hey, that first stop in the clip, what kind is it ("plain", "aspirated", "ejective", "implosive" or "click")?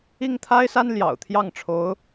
aspirated